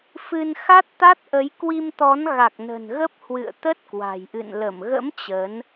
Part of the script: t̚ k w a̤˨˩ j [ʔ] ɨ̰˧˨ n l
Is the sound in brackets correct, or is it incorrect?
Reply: correct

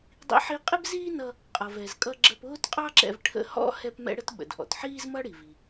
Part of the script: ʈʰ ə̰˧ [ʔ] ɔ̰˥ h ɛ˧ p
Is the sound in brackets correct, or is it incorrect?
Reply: incorrect: h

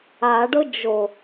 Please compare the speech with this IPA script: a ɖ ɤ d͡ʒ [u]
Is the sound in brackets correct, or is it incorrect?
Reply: incorrect: o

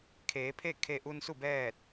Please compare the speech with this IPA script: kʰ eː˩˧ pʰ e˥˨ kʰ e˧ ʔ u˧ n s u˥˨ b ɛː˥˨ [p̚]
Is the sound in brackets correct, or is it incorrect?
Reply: incorrect: t̚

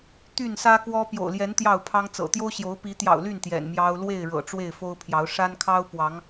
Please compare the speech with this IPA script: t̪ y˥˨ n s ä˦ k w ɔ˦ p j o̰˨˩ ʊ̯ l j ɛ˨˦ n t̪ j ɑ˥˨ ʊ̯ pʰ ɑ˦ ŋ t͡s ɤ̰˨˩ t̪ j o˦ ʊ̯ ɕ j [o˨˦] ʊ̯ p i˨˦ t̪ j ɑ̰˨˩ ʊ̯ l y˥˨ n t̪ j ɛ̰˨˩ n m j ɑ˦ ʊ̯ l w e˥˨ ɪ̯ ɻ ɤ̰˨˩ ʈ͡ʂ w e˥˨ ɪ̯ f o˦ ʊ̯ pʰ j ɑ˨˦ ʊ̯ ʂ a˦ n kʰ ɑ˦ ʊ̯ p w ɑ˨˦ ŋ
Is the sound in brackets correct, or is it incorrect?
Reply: correct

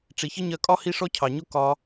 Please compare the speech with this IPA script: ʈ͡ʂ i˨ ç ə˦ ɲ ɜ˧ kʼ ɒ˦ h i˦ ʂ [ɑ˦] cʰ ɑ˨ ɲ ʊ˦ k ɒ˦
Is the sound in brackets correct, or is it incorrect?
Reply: incorrect: ɔ˦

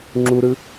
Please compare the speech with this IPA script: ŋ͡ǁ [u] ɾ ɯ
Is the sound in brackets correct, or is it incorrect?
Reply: correct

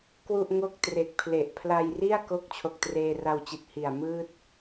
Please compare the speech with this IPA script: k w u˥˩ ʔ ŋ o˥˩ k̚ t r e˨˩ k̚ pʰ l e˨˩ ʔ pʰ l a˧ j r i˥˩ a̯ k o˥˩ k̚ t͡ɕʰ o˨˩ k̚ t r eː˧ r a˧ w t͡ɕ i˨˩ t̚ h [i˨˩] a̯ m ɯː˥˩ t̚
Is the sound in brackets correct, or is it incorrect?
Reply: correct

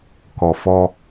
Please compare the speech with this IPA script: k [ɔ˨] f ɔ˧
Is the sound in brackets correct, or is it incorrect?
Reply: correct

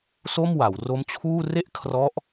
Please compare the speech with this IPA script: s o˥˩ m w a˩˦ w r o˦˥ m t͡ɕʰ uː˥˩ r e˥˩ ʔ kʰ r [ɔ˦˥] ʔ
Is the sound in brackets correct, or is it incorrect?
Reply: correct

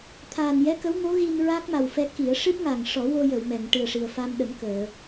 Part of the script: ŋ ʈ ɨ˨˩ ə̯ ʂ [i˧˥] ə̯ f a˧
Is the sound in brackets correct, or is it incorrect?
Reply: incorrect: i˨˩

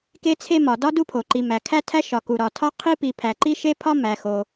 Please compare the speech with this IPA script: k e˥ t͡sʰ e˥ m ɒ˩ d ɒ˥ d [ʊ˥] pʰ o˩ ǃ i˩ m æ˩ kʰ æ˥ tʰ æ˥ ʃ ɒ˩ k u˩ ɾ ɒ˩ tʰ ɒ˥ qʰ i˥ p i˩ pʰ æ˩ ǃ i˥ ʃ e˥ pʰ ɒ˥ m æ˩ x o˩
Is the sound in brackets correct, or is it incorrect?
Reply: incorrect: u˥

